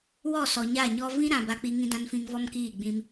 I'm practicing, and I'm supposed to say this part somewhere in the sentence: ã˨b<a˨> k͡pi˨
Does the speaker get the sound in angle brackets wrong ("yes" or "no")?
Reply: no